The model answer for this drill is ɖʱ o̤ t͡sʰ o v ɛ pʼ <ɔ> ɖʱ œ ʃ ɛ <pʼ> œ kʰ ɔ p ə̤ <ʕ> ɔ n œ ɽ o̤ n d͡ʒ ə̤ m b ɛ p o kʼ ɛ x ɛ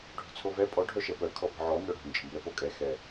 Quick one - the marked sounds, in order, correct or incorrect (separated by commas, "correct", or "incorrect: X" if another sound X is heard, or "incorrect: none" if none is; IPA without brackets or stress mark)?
correct, incorrect: p, correct